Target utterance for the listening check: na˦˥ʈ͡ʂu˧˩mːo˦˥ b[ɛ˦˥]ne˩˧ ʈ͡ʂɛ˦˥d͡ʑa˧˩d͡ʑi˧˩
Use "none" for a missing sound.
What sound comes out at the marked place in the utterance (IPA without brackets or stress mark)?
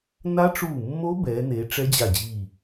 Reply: ɛ˩˧